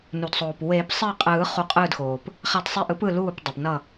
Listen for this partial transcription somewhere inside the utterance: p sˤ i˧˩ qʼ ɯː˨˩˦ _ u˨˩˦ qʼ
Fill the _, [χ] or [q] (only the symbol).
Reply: χ